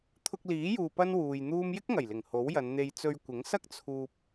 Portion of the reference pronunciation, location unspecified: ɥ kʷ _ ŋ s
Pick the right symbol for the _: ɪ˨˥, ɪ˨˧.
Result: ɪ˨˥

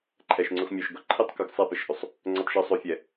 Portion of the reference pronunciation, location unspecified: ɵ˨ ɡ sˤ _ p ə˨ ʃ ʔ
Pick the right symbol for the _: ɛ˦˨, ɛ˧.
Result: ɛ˦˨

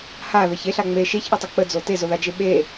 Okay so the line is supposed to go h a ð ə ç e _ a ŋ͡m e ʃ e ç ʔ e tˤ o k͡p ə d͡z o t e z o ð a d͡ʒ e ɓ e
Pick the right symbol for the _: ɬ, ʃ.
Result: ɬ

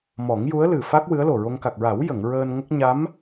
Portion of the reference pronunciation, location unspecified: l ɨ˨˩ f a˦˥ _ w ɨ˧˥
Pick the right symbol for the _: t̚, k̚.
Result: k̚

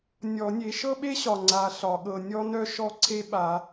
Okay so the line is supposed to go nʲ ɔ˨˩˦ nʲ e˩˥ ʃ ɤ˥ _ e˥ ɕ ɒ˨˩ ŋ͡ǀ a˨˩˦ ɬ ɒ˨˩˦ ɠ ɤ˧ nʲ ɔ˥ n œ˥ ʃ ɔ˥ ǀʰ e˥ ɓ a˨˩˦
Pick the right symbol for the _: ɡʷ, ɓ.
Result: ɓ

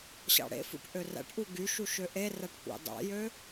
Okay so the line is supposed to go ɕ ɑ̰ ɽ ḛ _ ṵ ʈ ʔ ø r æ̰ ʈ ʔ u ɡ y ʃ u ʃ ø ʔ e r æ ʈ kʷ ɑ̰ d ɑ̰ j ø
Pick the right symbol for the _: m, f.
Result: f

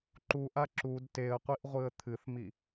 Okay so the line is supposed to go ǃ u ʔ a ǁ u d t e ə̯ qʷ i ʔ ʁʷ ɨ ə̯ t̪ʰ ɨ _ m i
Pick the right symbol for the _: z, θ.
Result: θ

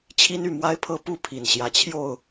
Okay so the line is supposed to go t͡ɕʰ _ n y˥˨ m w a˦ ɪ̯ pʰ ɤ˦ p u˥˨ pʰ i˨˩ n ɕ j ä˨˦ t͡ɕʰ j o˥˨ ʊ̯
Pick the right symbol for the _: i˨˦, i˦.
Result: i˦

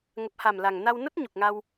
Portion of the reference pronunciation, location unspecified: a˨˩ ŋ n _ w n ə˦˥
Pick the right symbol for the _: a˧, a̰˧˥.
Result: a˧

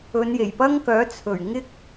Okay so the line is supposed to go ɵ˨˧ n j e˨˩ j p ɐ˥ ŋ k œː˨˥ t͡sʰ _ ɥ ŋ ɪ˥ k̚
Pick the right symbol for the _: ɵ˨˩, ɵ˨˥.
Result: ɵ˨˩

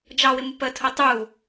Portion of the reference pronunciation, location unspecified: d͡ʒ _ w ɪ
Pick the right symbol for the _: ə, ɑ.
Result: ɑ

